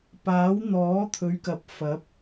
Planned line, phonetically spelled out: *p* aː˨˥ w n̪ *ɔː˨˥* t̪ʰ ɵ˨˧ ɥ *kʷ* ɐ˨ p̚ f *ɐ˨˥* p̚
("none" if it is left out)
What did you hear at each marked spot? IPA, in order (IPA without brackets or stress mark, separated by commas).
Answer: p, ɔː˨˥, k, ɐ˨˥